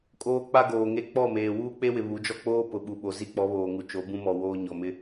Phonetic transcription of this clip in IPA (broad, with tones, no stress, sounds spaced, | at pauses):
kʼ oː˦ k͡p a˦ ɡ oː˨ ŋ e˦ k͡p ɔ˦˨ m eː˨ w uː˦ k͡p e˦ w ɪ˨ β u˨˦ d͡ʒ ɔ˦ k͡p oː˦ p ʊ˨ ɓ u˨ ɓ o˨ z i˦ k͡p ɔ˨˦ β oː˨ ŋ u˨ t͡ʃ o˨˦ b ũ˦ m ɔ˨ w oː˦ ɲ ɔ˨ m ɪ˦